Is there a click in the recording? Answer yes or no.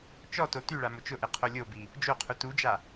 no